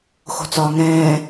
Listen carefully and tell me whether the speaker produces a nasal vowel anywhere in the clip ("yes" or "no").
yes